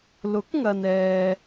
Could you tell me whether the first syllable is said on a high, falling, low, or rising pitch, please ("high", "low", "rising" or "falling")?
rising